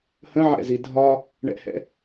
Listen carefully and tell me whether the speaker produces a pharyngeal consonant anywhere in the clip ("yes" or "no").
yes